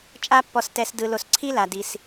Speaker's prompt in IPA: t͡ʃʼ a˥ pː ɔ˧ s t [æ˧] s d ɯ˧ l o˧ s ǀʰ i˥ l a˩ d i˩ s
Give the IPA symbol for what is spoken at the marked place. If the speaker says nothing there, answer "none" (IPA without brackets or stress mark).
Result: ɛ˧